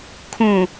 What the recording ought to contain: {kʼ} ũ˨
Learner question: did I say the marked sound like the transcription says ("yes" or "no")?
no